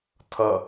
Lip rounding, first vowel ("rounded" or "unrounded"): unrounded